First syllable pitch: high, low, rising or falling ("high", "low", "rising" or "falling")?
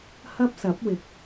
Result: high